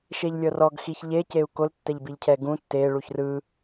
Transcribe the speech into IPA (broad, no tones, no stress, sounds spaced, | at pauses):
ʃ e ʎ lʲ ɤ r ɔ ɡ x i ç ʎ e c e u̯ k o l tː ɛ ʎ b i ʎ cʰ ɛ ɡ ũ tː e ɭ u ç r ɯ